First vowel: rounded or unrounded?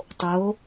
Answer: rounded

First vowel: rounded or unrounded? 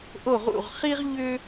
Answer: rounded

